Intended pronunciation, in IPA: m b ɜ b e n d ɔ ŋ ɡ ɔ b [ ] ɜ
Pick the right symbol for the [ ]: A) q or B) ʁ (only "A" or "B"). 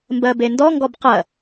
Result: A